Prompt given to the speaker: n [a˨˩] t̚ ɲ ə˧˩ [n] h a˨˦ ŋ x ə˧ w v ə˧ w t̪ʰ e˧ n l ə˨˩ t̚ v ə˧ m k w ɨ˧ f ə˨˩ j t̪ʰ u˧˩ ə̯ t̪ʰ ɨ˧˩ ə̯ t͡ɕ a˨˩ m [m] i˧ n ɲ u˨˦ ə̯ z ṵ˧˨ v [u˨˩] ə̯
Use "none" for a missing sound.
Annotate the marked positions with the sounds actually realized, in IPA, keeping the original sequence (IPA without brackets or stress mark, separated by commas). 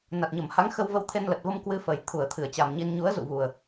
a˨˩, m, ɲ, u˨˩